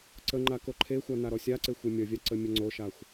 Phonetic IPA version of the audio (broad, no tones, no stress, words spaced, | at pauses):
ǀəŋ͡ǃa koǃʰexʷa naɾɔsʲaǀe xʷemʲʌvʲa ǀəmʲəŋ͡ǀoʃaxʷ